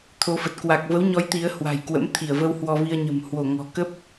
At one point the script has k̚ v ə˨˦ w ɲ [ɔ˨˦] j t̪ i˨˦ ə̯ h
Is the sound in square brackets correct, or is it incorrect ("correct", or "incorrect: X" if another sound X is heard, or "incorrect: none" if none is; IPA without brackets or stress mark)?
correct